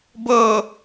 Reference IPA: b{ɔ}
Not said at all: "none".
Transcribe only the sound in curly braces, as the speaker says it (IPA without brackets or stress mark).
ɤ